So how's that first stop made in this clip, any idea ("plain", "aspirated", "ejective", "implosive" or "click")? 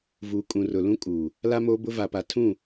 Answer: ejective